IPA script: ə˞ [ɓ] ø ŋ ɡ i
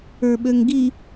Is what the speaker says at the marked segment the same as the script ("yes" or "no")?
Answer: yes